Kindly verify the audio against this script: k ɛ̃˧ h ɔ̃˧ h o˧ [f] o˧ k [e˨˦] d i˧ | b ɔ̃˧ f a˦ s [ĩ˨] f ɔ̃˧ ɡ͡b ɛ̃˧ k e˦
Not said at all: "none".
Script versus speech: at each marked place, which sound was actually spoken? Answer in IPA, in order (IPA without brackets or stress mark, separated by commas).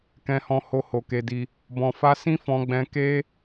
h, e˧, ĩ˦